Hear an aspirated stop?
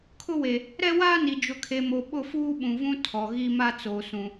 yes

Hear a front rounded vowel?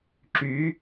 yes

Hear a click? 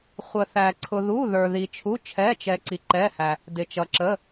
yes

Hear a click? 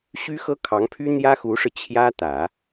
no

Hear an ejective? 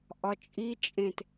yes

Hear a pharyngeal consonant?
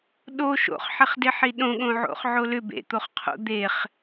yes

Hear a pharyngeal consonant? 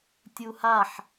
yes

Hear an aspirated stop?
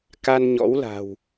no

